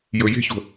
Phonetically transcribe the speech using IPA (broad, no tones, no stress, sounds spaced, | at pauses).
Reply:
j ɵ j e̤ ç o̤